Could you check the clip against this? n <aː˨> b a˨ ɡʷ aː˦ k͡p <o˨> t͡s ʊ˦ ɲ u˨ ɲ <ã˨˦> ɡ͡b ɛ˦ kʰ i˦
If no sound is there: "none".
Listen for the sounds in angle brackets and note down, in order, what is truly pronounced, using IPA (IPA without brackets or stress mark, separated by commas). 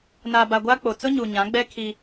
aː˨, o˨, ã˨˦